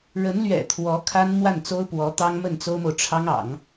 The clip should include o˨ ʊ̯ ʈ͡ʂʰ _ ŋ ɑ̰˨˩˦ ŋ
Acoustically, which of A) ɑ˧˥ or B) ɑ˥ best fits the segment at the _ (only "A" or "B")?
B